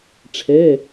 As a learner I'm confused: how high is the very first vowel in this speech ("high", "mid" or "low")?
mid